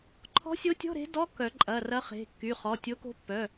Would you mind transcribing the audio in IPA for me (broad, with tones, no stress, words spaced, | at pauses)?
ǃʰɔ̤˧˥sʲo˧˥tʲɔ̤˧˥˧ ɾe̤˧˥ dɔ˧˥˧kːœ˨˩˦ ǃʼɐ˩˧˩rɐ˧˥ χe̤˩˧˩kːy˩˧˩ χɔ˩˧˩tʲo˧˥ko̤˧˥ pːœ˩˧˩